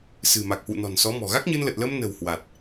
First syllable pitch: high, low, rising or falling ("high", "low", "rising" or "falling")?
low